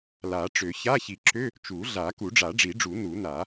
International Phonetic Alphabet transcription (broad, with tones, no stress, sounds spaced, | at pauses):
l a˨˩˦ ʈ͡ʂ ø˨˩˦ ç a˧˥˧ ç i˨˩˦ ǁ ø˧˥˧ | t͡ʃ u˨˩˦ ɮ a˨˩˦ k u˨˩˦ ɖ͡ʐ a˨˩˦ ɖ͡ʐ i˨˩˦ ɖ͡ʐ u˨˩˦ n u˨˩˦ n a˨˩˦